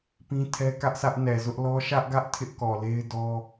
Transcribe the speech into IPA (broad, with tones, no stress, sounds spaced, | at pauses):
p ĩ˦ tʰ ɛ˦ k ä˦ ʔ s ä˦ ʔ n ɛ˨ z ʊ˦ ʔ l ɔ˦ ʃ ä˦ ʔ ɡ ä˦ ʔ tʰ ɪ˦ ʔ k ɔ˨ l e˦ ɪ̯ d ɔ˦